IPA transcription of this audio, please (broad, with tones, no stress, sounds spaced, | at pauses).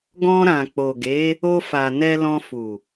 ɡ ɔ̃˧ ɾ ã˨ k͡p o˨ ɡ e˨˦ | o˧ f a˨ n ɛ˧ l ɔ̃˧ f u˨